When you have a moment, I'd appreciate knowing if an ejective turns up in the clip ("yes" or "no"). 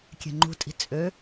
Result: yes